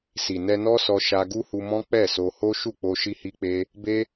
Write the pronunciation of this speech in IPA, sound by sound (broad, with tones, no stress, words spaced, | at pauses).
si˨ nɛ˧nɔ˦sɔ˧ ʃa˧ɡu˦hu˧mɔ̃˦ k͡pɛ˦˨so˧ ho˦ ʃu˦˨k͡po˧ ʃi˦hi˦k͡pe˦ | be˦